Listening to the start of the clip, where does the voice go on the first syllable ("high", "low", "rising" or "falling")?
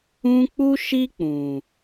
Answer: high